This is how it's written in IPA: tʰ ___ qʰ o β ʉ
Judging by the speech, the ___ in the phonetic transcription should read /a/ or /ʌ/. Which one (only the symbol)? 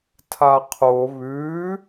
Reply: a